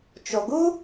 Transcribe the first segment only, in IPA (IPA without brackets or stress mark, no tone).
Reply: t͡ʃ